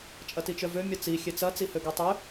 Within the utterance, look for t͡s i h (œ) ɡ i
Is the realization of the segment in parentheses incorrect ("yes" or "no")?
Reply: yes